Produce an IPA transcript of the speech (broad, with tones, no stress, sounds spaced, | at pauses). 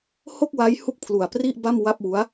h o˥˩ k̚ w a˦˥ j h u˥˩ k̚ pʰ l u˨˩ a̯ p r i˥˩ ʔ b a˥˩ m w a˥˩ p̚ w u˦˥ a̯